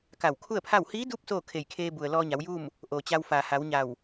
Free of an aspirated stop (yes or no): no